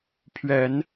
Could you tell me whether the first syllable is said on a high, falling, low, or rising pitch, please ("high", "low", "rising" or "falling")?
rising